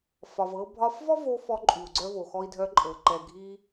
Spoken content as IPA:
f ɒ˩ v ɤ˧ bʱ ɒ˧ f v ɔ˥ v o˧ f ɔ˧ ǃʼ y˩ u̯ ɡ͡ǀ œ˧ v o˩ x ɔ˧ i̯ dʱ œ˧ ǃʼ ɤ˩ ǃ ɛ˩ ɡʱ i˧

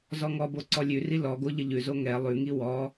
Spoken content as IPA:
z ɔ ŋ ɔ b o ǀ ɔ lʲ ʉ r i l ɔ ɡ o ʎ ə ʎ ʉ z o ŋ ɛ lˠ ʉ ŋ i w ɔ

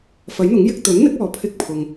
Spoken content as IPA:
f ɐ˨˥ j n̪ ʊ˨˥ ŋ j ɪ˥ k̚ t̪ ɵ˨˥ n n̪ ɪ˨˥ k̚ ɔː˨ pʰ ɪ˥ k̚ pʰ ʊ˧ ŋ

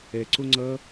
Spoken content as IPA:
ɛ ǀ o ŋ͡ǀ ʌ

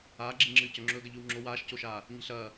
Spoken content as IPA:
aː ɡ͡ǁ i ŋ͡ǁ ɨː c ɵ ŋ͡ǁ ɵː ɡ ɐ ʎ ʉ w ŋ͡ǁ o w aː ʃ c o ʃ aː | ɲ i̤ ɬ ɐː

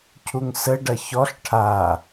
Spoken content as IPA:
cʰ u ŋ s ə ɖ ɐ ç ɔ ɬ ʈʰ a

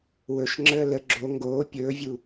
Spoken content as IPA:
w ɵ ʃ ŋ͡ǁ əː l ə ɡ͡ǁ o ŋ ɡ oː pʲ ɵː vʲ u

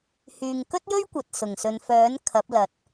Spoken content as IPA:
h yː˨ ŋ k ɵ˥ t̚ j ɵ˥ ɥ kʷ ɐ˨ t̚ s ʊ˨˩ ŋ s ɵ˨ n f œː˨˥ n kʰ ɐ˨˥ p̚ l ɐ˨ t̚

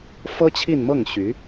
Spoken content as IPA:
f ɤ˥ t͡ɕʰ i˥˧ n m ɤ˥˩ ŋ ɕ y˧˥

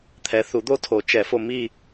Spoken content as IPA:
t̪ʰ ɛ˨ θ u˨˩˦ d̪ o˦ tʰ o˨˩˦ t͡ʃ ɛ˨˩˦ f o˨ m i˦˨

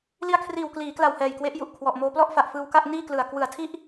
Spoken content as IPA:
l i˧ a̯ kʰ r iː˨˩ w k l iː˩˦ k l a˨˩ w h ɛː˨˩ j k w e˦˥ ʔ j u˨˩ ʔ kʰ w ɔ˨˩ ʔ m oː˧ p l ɔ˥˩ ʔ f a˨˩ ʔ f ɯː˧ w k a˥˩ ʔ n iː˥˩ k l ɯ˨˩ a̯ k w ɯ˨˩ a̯ tʰ i˥˩ ʔ

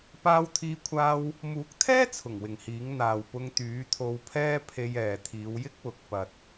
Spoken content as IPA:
p aː˧ w t̪ʰ iː˧ kʷʰ aː˧ w | m uː˨˥ k̚ t̪ʰ ɛː˥ t͡sʰ ʊ˨˩ ŋ w ɪ˨ ŋ h iː˨˥ ŋ n̪ aː˨ w p ʊ˧ ŋ t̪ yː˨˥ t̪ʰ o˧ w pʰ ɛː˥ pʰ e˧ j ɛː˨ t̪ʰ iː˨˧ w j ɪ˥ k̚ w ʊ˨ k̚ p ɐ˨ t̚

